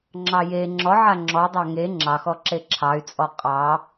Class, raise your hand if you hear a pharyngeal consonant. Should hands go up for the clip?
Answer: yes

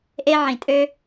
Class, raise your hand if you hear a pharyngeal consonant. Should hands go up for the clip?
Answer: yes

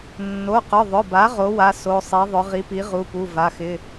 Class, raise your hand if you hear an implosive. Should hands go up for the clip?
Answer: no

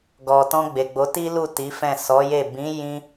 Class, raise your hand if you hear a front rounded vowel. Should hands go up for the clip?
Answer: no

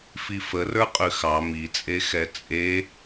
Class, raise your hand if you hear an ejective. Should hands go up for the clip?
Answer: yes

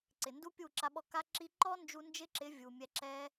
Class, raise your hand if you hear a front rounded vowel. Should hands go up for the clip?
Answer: no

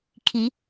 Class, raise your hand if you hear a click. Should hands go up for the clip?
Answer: no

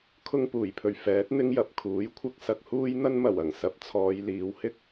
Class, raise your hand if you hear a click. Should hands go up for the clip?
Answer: no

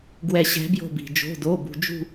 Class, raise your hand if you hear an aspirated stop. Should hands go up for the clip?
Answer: no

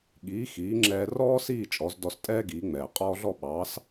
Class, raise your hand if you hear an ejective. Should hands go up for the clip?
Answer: yes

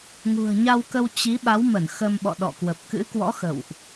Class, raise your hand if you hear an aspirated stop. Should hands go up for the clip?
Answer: no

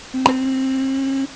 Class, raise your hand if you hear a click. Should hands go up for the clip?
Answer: yes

